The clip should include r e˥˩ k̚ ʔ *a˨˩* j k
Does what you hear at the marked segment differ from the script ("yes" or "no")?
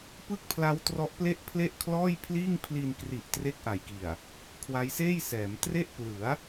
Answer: no